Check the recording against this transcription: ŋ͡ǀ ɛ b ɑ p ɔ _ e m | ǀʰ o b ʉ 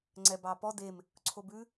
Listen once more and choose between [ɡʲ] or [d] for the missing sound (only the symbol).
d